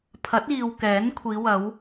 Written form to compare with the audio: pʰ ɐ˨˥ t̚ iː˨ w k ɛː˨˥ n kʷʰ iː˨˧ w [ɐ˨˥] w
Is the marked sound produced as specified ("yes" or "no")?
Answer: no